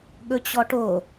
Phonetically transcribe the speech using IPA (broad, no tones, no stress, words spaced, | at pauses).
ɠɵt͡ɕɔʈo